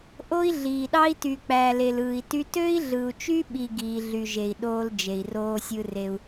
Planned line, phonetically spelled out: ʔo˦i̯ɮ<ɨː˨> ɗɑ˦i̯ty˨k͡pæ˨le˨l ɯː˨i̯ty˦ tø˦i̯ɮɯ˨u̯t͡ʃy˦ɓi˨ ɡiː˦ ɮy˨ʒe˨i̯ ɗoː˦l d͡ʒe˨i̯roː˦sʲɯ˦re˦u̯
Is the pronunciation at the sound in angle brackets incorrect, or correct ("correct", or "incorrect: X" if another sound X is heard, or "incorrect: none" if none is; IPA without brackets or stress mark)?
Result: incorrect: iː˨